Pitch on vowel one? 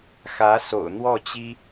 rising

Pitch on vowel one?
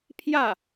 falling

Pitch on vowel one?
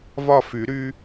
falling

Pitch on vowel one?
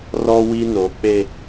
high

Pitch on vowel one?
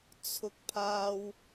high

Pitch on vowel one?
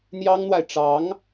high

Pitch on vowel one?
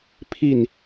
falling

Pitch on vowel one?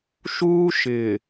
high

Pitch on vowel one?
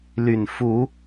low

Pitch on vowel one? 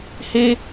high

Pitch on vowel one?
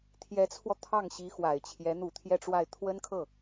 rising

